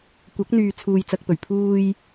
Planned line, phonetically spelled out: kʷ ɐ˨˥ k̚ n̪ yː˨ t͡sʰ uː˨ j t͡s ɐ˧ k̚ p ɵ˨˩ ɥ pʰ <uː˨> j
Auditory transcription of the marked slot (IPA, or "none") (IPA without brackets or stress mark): uː˨